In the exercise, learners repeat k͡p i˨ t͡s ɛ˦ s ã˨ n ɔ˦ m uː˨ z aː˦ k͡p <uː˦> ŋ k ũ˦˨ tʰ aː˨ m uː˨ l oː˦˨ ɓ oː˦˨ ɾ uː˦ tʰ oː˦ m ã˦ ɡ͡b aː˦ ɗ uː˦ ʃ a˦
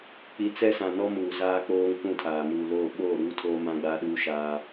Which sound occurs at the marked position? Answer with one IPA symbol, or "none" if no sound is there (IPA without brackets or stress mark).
oː˦